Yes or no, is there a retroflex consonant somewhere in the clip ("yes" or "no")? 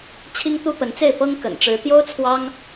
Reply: yes